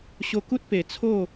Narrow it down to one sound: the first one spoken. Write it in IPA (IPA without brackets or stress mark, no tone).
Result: ɕ